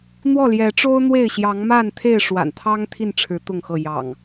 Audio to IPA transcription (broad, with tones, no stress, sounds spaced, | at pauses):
n̪ w ɔ˥˨ l j ɛ˨˦ ʈ͡ʂ o˦ ʊ̯ n̪ w e˥˨ ɪ̯ ɕ j ɑ˨˦ ŋ m a˥˨ n t̪ʰ e˥˨ ɪ̯ ʂ w a̰˨˩ n t̪ʰ ɑ˦ ŋ t̪ʰ i˥˨ n ʈ͡ʂʰ ɻ̩˨˦ t̪ ʊ˥˨ ŋ x ɤ˥˨ j ɑ̰˨˩ ŋ